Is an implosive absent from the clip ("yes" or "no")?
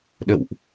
no